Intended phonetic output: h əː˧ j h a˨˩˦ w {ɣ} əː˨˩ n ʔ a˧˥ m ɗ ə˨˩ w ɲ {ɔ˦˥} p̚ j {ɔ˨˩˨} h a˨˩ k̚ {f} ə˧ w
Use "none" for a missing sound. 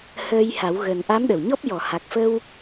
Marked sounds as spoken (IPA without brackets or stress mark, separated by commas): ɣ, ɔ˦˥, ɔ˨˩˨, f